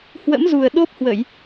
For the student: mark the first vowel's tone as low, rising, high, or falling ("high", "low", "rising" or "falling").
rising